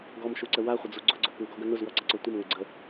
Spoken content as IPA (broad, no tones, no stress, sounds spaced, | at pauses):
ɡ ɔ m ʃ u ǀ ə w a χʷ ə d͡z u ɡ͡ǀ ʊ ɡ͡ǀ ʊ p u ɡ ɔ ɡ ə n ʊ z w ɔ ǀ ə ǀ ɔ tʷ ə m ŋ ʊ ɡ͡ǀ ə